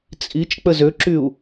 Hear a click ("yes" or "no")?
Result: yes